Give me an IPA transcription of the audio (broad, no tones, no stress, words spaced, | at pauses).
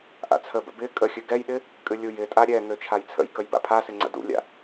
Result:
ʔa̰t͡sʰəbə̰ bɪ kʼəxʲɨ ɡɛjɗɪ | kʼɨlʲujɪtʼa ɾʲɛŋø t͡ʃʰajt͡sʰə̰jkəj ba̰pʰasɪ ŋ͡ǀə̰dṵlʲa̰